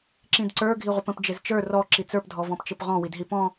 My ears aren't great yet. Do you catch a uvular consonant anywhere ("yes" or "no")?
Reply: yes